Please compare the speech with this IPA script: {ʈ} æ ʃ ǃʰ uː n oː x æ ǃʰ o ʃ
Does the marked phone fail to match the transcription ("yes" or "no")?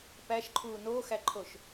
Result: yes